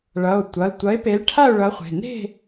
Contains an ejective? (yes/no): no